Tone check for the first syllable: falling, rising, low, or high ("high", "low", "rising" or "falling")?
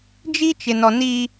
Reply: high